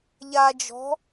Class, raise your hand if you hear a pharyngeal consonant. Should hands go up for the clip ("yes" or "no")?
no